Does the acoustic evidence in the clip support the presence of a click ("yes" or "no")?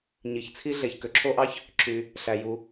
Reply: yes